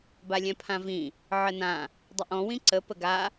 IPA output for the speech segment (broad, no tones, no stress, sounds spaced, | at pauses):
b a lʲ ɛ̃ pʰ ã v ĩ | ʕ ə n ã | dˤ ə ʔ ɔ̃ w ĩ ǀ ə p ə ɡ a